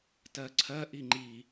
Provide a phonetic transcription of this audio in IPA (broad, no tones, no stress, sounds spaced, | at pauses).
t ɜ ǀʰ ɜ ʔ i ŋ͡ǃ i